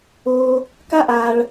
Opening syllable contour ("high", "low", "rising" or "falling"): high